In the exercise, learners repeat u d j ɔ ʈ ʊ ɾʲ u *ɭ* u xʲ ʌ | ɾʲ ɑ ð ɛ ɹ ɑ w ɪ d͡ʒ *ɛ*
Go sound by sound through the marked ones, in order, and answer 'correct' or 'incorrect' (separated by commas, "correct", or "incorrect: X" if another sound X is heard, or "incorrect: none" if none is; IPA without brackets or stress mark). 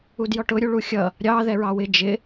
correct, incorrect: ɪ